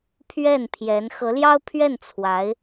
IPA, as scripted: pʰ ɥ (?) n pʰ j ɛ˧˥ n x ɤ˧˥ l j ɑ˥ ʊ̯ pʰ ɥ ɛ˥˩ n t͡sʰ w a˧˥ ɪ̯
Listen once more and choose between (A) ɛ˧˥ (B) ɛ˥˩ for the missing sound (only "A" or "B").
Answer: B